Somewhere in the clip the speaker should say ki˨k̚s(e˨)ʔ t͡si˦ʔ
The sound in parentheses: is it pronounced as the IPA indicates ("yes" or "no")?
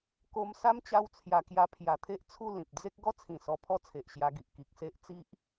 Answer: no